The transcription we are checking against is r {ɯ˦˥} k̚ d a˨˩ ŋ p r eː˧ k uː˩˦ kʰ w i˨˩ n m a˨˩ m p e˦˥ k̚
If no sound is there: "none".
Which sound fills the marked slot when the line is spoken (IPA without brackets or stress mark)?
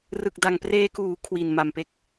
ɯ˨˩